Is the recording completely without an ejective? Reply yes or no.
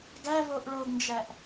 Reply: yes